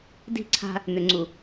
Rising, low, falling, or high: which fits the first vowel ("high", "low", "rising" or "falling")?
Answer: falling